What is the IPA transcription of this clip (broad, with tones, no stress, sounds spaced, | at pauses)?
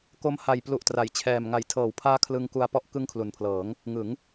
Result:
k o˦˥ m h a˨˩ j p l u˨˩ ʔ t r a˩˦ j t͡ɕʰ ɛː˨˩ m ŋ a˨˩ j tʰ ɤː˩˦ w pʰ aː˦˥ kʰ l ɯ˧ ŋ k u˧ a̯ p ɔ˦˥ ʔ k ɯ˦˥ ŋ kʰ l u˨˩ n pʰ l ɤː˩˦ ŋ | ŋ ɯ˩˦ ŋ